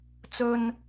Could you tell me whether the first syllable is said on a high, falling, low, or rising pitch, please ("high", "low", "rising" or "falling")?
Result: low